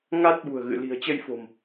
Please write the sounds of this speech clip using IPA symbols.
ŋ a˦˥ t̚ ɓ ṳ˨˩ ə̯ ɣ ɨ̰˧˨ l i̤˨˩ ə̯ t͡ɕ ə˧ j f o̤˨˩ m

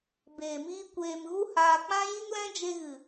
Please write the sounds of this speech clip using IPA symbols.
b eː˨ m iː˧ kʷ eː˨ m ɣ u˦ h aː˧ k͡p ã˦ j i˦ ŋ l ɛ̃˦ d͡ʒ e˧ ɣ ɨ˨

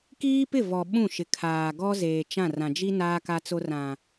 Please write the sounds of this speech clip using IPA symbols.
k iː˦ p ɪ˦˨ v ɔ˨ ɓ ũ˦˨ ʃ ɪ˨ kʰ aː˨ ɡ ɔ˦ z eː˨ t͡ʃ ã˦˨ r ã˨ d͡ʒ i˦ n aː˦ k a˦ t͡s o˦ r ã˨

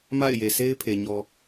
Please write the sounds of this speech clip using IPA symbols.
m a̰˦˨ ɪ̯ j e˨ s e˦ ɪ̯ pʰ e˨ ɲ ɔ˨

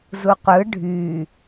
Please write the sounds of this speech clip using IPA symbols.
z u qʷ ɯ ɖʱ y

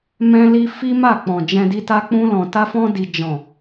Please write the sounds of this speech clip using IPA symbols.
m ɛ̃˦ l i˦ f i˦ m a˦˨ k͡p ɔ̃˨ d͡ʒ ɛ̃˧ d i˧ t a˦ k͡p ũ˧ l ɔ̃˨ t a˧ f ɔ̃˧ d i˨ d͡ʒ ɔ̃˨

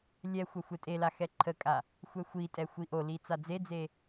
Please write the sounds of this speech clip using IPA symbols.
lʲ ɛ xʷ ɐ xʷ e tʼ e l a x ɛ ǃʰ ə kʼ a | xʷ ɛ xʷ i tʼ ɛ xʷ i ʔ o l i t͡s a d͡z e d͡z e

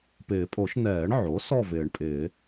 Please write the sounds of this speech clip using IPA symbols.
p ɪː˨˩˦ pʼ o˨˩˦ ʃ n ɛː˨˩˦ ɳ ʕ o˩˥ s ɔ˥˨ v ɪː˨˩˦ ɳ pʼ ɪː˨˩˦

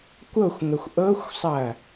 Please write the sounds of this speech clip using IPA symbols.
kʷ ɤ xʷ ŋ ə xʷ ʔ ɤ xʷ sˤ ɐ

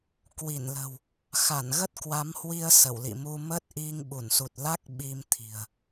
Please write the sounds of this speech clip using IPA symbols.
k w i˧˩ n l ə̤˨˩ w | x a˧˩ n ɣ ə˦˥ t̚ k w a˨˦ m h w i˧ ə̯ s ə˧˩ w l ḭ˧˨ m u˧ m ə˦˥ t̚ ʔ i˧ ŋ ɓ u˧˩ n s u˨˩ t̚ l a˦˥ k̚ ɓ i˧ m t̪ʰ i̤˨˩ ə̯

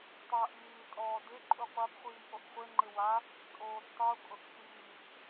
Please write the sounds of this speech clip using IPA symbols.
tˤ aː ʔ iː tʼ ɔː d ɪ ǃʼ u qʷ a b χʷ iː ʔ o ʔ χʷ e ŋ͡ǃ ɪ w a | tʼ oː b tˤ u kʼ ʊ ʔ h iː ʔ

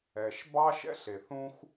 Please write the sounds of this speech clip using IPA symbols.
ɛ˨ ʃ b ɑ˦ ʃ ɛ̰˦ ɬ e˨ θ ũ˦ x

